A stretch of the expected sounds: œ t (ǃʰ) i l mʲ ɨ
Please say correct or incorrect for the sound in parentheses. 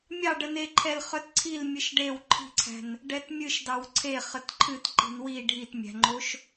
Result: incorrect: ǀʰ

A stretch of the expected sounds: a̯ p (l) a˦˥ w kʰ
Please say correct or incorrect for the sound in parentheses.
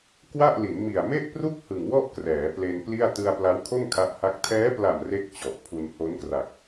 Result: correct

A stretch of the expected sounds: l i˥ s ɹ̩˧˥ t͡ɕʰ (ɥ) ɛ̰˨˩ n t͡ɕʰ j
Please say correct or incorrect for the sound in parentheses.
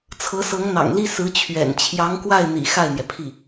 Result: correct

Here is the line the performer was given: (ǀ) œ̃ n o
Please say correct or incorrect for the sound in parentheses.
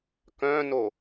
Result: incorrect: k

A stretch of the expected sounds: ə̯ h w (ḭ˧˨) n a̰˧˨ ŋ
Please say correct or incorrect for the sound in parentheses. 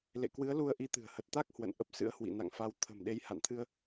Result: correct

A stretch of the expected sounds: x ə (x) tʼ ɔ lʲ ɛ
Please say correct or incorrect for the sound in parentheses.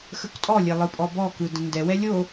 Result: incorrect: k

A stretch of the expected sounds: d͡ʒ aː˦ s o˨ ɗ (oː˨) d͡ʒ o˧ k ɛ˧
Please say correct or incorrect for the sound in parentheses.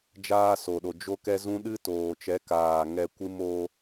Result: incorrect: o˨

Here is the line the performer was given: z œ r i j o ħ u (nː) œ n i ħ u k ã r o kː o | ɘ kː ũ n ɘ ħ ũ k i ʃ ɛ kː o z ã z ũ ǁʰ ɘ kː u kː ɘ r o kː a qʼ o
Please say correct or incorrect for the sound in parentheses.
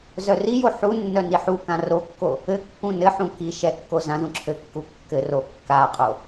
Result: correct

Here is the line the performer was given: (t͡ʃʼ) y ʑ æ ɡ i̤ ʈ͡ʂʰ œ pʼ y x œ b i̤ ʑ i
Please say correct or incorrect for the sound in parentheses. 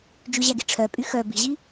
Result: incorrect: d͡ʒ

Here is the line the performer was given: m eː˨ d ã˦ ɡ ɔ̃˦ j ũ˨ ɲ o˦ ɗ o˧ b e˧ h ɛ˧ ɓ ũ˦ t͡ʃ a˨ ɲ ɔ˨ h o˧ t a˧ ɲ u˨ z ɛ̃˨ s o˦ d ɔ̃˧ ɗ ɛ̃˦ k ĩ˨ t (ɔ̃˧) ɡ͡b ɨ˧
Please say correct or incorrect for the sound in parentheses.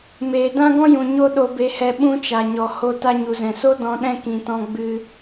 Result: correct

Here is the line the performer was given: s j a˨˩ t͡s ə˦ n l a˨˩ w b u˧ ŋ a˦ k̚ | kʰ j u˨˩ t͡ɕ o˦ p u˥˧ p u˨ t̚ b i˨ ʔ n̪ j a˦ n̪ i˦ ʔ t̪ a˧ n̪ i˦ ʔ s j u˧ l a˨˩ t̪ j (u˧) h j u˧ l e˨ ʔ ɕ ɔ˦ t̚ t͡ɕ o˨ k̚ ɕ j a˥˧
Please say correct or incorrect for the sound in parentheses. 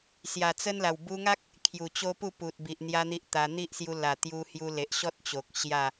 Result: correct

